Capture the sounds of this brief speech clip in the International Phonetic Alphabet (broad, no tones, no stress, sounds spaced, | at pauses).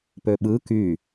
p ø ɓ ɯ k y